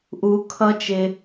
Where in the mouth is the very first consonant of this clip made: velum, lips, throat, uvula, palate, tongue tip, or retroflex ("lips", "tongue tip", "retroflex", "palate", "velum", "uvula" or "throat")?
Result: throat